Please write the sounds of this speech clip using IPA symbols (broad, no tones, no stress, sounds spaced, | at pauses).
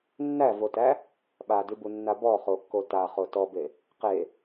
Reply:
nː æ v o t æ | ɓ a d ʉ b u nː a b ɔ χ o kː o t a χ o t ɔ b e | q e